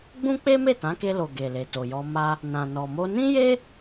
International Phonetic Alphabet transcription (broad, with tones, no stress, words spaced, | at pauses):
ɡ͡bũ˦k͡pe˦me˦˨ tã˨˦ke˧lo˨ ɡe˨le˨to˨jɔ˧ ma˧ | nã˨nɔ˨mo˧ nĩ˦je˦